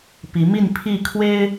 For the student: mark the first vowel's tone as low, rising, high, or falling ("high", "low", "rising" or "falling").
rising